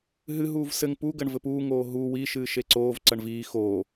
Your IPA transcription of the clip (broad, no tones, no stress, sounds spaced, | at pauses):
ɦ ɨ ɦ uː v s ɘ ŋ p u ɡ ɐ ɳ v ɘ p uː ŋ oː ɦ u w i ʃ ɨː ʃ e ǀ oː v ǀ ɐ ɳ v iː x oː